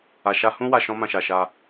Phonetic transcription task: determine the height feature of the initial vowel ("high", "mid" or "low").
low